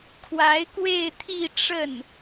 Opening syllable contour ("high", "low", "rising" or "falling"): rising